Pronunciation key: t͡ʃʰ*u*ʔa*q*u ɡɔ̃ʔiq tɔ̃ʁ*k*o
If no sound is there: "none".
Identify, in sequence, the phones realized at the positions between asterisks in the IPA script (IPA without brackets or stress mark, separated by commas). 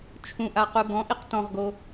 ũ, q, ɡ